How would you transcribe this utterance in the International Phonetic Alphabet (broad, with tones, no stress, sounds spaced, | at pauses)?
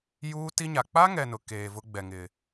j uː˦ t i˦ ɲ a˨ k͡p a˦ ŋ ɛ˨ n ʊ˨ k eː˨ v ʊ˦ ɡ͡b ɛ˨ ŋ ɪ˨